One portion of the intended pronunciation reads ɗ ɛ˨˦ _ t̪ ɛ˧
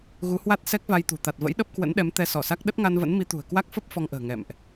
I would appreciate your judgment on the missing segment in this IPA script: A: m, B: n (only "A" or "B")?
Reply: A